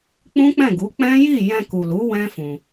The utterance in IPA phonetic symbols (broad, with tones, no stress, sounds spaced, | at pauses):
k͡p ũ˦ k͡p ɛ̃˦˨ ɡ u˨˦ k͡p ɛ̃˦ j i˦˨ j ɛ̃˧ k u˨ l u˨˦ w ɛ̃˦ f ũ˧